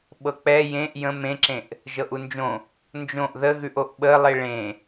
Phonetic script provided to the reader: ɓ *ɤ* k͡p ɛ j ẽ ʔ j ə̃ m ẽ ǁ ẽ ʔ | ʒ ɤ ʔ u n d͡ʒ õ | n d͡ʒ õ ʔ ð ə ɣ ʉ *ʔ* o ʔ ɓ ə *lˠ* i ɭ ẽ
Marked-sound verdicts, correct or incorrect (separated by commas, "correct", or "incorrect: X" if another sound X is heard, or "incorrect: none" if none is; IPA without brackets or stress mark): correct, correct, correct